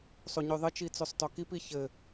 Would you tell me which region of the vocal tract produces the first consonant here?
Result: tongue tip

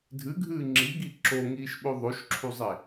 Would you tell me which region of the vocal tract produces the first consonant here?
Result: tongue tip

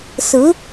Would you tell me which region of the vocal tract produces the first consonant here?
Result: tongue tip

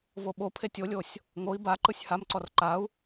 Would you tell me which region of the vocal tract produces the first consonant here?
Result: lips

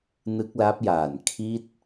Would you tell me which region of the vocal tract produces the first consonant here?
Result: tongue tip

